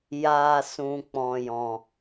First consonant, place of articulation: palatal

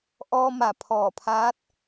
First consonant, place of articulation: glottal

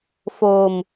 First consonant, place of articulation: labial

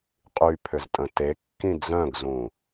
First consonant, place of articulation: uvular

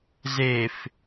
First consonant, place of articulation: alveolar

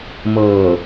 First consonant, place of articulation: labial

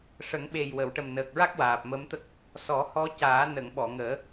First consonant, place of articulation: retroflex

